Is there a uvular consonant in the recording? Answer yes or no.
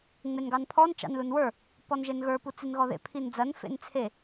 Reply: no